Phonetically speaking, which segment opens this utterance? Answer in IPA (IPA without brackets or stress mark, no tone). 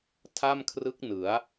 tʰ